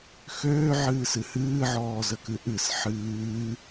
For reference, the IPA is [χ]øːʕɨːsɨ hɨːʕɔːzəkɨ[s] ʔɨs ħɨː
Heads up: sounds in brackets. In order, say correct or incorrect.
incorrect: x, incorrect: none

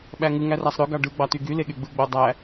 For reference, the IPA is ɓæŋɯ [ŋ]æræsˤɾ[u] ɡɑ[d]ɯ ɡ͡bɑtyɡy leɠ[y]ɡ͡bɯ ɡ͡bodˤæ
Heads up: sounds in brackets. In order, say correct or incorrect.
correct, incorrect: ø, incorrect: ɖ, correct

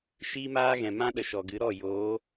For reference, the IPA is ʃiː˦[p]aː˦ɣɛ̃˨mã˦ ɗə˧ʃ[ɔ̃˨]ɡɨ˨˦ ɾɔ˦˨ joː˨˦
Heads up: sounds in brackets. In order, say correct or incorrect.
incorrect: m, incorrect: ɔ˨

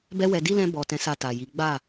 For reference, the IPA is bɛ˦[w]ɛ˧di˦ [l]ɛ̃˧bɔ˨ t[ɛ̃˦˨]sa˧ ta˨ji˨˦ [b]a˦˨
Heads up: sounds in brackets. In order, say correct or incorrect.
correct, correct, incorrect: ɛ̃˨˦, incorrect: ɡ͡b

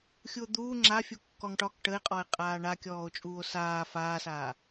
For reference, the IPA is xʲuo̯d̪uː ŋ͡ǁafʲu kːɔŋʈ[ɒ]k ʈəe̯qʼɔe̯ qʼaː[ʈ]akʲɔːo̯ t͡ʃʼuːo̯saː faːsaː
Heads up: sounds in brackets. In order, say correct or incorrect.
correct, incorrect: ɳ

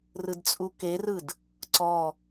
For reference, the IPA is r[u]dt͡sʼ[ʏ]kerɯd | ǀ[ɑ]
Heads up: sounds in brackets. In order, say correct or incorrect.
incorrect: ɯ, incorrect: u, incorrect: ɔ

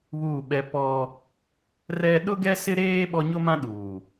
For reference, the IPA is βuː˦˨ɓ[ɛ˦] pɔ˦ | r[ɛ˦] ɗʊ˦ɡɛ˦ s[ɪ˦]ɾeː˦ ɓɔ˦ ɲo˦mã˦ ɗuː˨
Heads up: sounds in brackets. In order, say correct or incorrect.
correct, correct, correct

